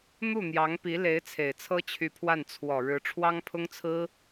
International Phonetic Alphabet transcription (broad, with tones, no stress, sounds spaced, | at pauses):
n̪ u˥˩ n̪ j ɑ˧˥ ŋ p i˧˥ l e˧˥ ɪ̯ t͡sʰ e˨˩ ɪ̯ t͡sʰ ɤ˥ t͡ɕʰ y˧˥ pʰ w a˥˩ n t͡sʰ w ɔ˨˩ ɻ ɻ̩˧˥ ʈ͡ʂʰ w ɑ˥ ŋ pʰ ʊ˥ ŋ t͡sʰ ɹ̩˥